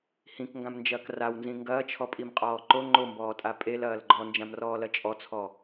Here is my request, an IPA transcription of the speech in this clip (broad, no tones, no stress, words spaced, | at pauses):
hĩkŋɡãmnd͡ʒɐːk rawnzĩ ŋɡɐːt͡ʃʰɔpʼimqʼɔː ǃo ŋ͡ǃombɔːtʼa pʼelɐːl ɡ͡ǃɔnd͡ʒãmrɔːlɐ t͡ʃʼɔt͡sʰɔ